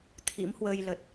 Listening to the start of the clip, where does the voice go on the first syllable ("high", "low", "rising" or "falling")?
rising